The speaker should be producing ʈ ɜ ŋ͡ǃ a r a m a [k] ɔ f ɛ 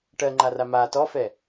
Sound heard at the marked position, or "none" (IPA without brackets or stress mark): t